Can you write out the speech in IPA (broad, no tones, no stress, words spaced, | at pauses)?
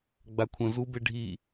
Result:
ɡ͡bakʷʰə̃ zube ɖʱi